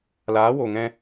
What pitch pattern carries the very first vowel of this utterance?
rising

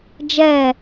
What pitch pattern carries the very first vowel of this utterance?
falling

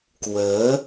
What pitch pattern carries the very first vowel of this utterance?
rising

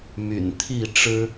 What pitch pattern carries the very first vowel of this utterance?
low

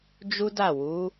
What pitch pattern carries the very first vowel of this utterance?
high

